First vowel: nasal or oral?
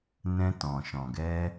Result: nasal